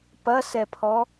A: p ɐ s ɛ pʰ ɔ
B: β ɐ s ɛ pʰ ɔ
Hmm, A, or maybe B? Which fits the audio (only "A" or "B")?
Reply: A